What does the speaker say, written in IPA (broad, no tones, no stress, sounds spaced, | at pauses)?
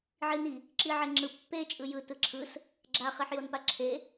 ʕ i n i | ǁ i ʕ e ŋ͡ǁ ɯ pː e t͡ʃʼ ɯ j ɯ t ɯ ǁʰ ɯ s | ɡ͡ǁ a χ e ħ j o n p a ǁʰ e